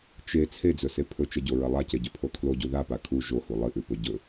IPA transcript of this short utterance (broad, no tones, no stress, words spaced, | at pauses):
t͡ʃe t͡sʰed͡zɵse pʰɵt͡ʃɐɟoɹɐ lˠaceɟʉpʰo kʰloɟu ðapa kʰu ʒohu lˠɨʔʉpɵ ɟɵ